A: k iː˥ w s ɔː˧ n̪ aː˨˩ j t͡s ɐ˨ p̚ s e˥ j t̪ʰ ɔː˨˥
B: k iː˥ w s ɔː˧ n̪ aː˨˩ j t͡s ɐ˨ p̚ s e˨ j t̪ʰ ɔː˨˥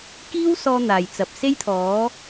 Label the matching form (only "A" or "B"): A